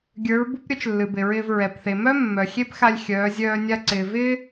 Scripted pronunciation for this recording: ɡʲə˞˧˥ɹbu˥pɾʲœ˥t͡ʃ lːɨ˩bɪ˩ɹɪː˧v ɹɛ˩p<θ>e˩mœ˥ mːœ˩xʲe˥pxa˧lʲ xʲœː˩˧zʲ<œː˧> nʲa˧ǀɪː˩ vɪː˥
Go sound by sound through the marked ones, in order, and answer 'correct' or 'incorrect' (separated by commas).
correct, correct